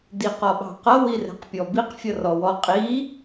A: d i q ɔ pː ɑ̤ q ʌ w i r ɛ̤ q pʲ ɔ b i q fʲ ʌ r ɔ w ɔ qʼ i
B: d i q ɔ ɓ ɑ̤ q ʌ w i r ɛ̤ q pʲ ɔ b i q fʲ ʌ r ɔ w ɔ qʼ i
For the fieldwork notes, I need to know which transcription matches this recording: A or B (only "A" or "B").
B